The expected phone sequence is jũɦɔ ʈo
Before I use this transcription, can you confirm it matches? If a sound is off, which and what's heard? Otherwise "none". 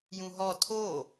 ʈ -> tʰ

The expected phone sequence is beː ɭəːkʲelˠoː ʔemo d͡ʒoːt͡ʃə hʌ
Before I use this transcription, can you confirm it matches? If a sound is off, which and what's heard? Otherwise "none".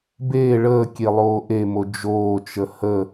ʌ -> ə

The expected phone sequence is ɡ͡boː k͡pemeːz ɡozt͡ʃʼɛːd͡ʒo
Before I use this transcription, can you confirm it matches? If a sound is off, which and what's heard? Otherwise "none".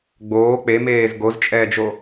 none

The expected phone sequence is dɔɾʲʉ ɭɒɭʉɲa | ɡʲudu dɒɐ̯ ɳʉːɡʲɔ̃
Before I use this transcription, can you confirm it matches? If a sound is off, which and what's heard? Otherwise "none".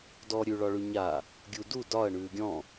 none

